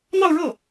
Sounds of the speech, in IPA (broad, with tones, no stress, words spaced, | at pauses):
n̪ɑ˥˧ʊ̯ɻɤ˥˩